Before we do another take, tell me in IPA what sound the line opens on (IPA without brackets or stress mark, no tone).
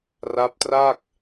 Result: r